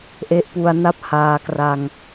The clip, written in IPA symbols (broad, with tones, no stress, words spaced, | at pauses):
ʔe˦˥ʔpu˧a̯na˥˩p̚ haː˧kra˧ŋ